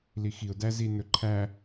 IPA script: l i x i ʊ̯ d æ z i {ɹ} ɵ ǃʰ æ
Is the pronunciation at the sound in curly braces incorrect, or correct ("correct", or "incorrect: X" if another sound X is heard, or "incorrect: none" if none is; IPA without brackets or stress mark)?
incorrect: n